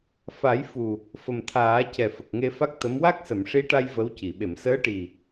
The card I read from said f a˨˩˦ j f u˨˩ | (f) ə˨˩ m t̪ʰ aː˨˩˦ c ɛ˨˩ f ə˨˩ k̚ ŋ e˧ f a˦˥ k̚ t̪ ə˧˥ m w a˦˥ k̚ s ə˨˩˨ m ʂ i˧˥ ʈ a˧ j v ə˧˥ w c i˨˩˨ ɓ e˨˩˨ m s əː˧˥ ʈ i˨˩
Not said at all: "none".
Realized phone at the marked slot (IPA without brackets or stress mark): f